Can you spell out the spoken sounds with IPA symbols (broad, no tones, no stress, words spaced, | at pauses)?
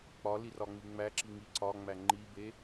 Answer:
k͡pɒli rɒŋ͡miŋ͡mæǁi ŋiǀɒŋ͡mæ ŋ͡ǃibe